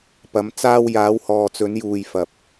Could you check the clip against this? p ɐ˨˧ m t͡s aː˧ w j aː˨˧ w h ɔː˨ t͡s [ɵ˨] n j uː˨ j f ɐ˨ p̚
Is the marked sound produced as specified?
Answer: no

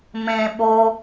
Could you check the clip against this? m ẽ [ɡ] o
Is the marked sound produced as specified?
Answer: no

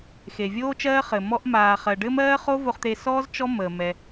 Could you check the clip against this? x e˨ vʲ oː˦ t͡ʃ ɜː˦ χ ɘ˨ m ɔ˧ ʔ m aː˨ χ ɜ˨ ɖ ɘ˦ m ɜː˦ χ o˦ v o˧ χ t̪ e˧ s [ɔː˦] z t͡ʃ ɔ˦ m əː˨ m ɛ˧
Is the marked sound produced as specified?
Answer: yes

